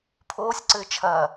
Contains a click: yes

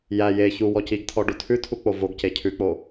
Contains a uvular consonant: no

